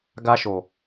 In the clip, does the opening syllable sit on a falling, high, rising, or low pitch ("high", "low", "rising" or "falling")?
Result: high